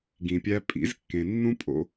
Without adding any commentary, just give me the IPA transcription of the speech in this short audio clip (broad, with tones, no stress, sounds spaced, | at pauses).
ɡ ĩ˨ pʲ æ˧ pʼ ḭ˨˦ z kː ẽ˨ nː ũ˦ pʼ o̰˦